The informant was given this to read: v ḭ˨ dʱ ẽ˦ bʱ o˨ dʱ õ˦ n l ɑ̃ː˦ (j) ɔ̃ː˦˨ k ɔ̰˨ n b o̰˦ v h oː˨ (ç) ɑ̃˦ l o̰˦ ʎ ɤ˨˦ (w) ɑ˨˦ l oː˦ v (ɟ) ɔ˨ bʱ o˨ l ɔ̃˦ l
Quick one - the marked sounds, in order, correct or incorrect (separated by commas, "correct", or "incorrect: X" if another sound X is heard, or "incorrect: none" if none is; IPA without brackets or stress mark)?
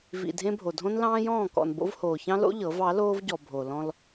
correct, correct, incorrect: v, correct